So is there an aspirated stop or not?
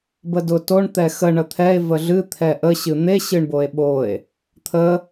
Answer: yes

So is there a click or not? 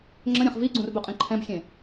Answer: yes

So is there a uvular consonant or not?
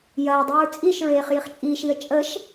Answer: yes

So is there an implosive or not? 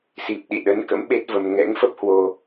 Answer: yes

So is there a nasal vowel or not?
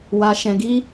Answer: yes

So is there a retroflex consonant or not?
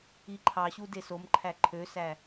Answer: no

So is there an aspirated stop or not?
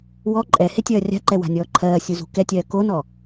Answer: yes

